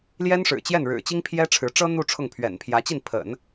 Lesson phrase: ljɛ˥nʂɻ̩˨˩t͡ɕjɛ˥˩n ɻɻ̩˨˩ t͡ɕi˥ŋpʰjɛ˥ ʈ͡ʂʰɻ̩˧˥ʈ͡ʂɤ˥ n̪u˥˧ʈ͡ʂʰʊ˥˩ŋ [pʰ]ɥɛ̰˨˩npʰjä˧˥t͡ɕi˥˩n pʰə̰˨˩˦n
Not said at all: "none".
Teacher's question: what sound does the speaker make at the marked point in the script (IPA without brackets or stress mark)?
pʰ